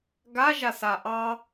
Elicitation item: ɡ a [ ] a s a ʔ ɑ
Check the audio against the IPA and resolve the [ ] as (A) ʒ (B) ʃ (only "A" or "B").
A